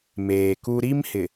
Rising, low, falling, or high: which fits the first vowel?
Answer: low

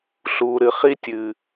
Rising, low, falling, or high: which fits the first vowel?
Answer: low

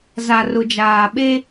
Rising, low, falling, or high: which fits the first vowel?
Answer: low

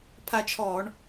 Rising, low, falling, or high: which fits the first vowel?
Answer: falling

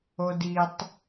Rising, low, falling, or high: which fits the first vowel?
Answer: high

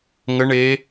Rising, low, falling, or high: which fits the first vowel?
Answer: rising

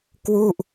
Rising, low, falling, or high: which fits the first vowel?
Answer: falling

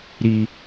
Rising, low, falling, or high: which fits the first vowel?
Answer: high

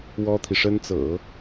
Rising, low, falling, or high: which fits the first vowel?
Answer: high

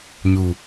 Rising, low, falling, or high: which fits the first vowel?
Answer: low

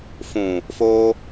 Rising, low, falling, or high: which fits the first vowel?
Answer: low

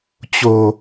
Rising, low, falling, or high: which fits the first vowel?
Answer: low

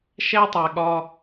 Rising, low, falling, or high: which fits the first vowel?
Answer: high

